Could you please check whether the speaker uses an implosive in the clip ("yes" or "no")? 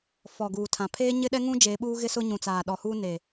yes